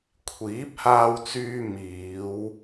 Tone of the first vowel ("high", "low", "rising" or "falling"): rising